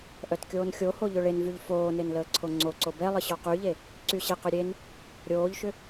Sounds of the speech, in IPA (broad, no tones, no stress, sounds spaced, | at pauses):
ʔ œ t kʲ oː n xʲ o h o ʎ ʏ ɭ e n v y ʎ f oː n e n l əː ǀʰ o ŋ͡ǀ o ǀ o b ɛ lˠ ə ɕ ɔ q y ʎ e | ǀ y ɕ e q ʏ ɾʲ e n | ɾʲ oː ʎ ʃ ʏ